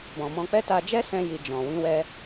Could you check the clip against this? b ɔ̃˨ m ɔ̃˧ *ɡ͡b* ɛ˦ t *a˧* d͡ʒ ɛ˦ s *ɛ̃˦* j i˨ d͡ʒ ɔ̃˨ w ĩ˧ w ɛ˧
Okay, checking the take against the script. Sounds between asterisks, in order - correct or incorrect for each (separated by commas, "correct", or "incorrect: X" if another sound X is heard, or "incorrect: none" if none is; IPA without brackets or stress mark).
incorrect: k͡p, correct, incorrect: ɛ̃˧